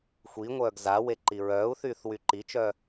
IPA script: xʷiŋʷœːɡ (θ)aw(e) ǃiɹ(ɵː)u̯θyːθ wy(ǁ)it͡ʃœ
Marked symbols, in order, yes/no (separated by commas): no, yes, no, no